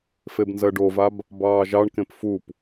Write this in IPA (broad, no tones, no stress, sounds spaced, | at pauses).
f e b n z ɜ ɖ o v a b | b ɑː ʒ ɑ ɳ k ẽ p f u p